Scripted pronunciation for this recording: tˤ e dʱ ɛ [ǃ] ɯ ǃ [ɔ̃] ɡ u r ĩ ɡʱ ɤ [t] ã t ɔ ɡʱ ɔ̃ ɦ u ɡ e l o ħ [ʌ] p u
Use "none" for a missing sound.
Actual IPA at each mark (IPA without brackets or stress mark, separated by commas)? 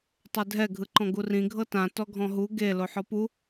ɡʱ, ɔ̃, t, ɔ